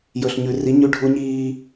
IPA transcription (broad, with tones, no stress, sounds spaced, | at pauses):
j ɵ˨ ɬ ɲ ʉ˨ r i˨˦ ɲ ʉ˦ ɖʱ u˦ ɲ iː˦